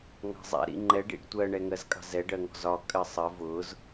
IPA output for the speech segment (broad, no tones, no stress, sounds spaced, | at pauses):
ŋ ɑ̤ zˤ ɛ̰ ɾ ḭ ŋ͡ǃ ɛ ɖ ḭ ɖ tʷ ɜ ɳ ɛ ŋ ɜ z kʼ ɑ̤ z ɛ ɖ ɜ ŋ ɔ̤ z ɒ kʼ ɜ sˤ ɜ v ʊ z